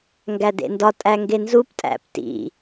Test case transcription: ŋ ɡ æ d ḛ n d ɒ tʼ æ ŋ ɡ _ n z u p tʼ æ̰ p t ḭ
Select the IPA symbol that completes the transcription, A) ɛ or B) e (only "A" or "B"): B